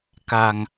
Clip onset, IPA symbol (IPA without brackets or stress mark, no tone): k